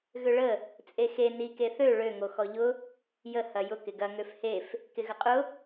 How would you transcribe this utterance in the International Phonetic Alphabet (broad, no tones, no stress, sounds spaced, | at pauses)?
ɣ ʏ ɭ ə | t͡sʼ e x e n i k e θ ø ɭ ø ŋ o x ɔ ʎ ʊ | j ə h ɐ j ʊ k ɪ ɡ ɐ ŋ ø f h e f | k ɪ ɣ ə qʼ ʊ